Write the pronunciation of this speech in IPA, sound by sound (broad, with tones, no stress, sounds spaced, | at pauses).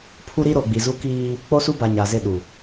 pʰ u˦ ɾ i˦ ɾ o˨ ɡ͡b i˨ z u˦ k iː˦ | k͡p o˦ s u˦ b a˨ ɲ a˨ z ɪ˦˨ ɗ u˨